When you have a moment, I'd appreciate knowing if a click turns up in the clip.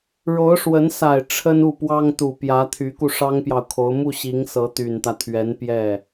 no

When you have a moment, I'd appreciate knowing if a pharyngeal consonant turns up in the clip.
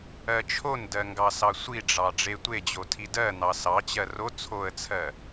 no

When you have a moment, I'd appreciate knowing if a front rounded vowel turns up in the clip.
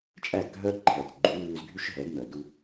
yes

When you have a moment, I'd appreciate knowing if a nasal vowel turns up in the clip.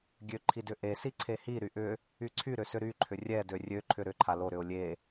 no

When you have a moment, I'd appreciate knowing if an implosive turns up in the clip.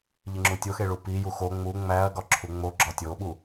yes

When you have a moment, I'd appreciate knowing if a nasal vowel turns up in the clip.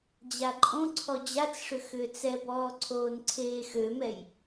yes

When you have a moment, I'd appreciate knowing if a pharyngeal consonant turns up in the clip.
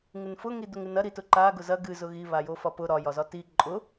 no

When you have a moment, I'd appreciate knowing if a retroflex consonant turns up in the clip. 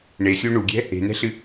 yes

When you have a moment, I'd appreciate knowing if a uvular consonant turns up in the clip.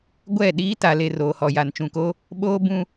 no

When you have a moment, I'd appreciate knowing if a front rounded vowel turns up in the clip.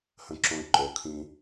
no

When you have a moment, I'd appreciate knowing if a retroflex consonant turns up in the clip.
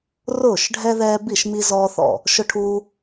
yes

